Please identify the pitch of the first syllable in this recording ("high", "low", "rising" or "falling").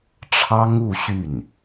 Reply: high